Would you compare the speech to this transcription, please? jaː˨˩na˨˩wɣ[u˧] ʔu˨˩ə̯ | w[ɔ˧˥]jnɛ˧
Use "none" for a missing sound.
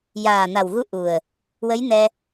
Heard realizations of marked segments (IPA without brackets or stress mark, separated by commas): u˧, ə˧˥